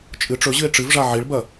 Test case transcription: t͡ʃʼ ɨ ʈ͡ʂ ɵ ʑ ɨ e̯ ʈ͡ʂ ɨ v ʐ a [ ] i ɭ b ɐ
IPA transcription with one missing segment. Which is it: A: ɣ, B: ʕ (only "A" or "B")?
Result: B